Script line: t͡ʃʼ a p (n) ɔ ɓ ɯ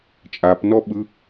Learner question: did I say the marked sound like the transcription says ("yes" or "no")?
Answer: yes